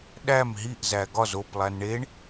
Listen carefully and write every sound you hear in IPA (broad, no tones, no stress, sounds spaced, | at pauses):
ɗ æ m ɦ i ʔ z æ ɡ ɒ z o p lˠ æ n ɳ e ɳ